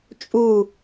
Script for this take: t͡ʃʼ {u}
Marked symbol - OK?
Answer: yes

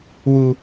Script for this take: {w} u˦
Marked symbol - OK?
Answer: yes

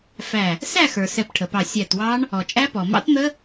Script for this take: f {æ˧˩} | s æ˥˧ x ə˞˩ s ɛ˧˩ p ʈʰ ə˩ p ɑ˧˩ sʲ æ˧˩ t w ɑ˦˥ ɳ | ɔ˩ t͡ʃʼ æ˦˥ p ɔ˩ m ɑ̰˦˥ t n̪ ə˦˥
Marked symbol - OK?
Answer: yes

